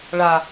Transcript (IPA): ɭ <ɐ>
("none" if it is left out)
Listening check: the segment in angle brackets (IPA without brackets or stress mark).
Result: a